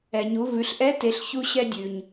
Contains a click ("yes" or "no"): no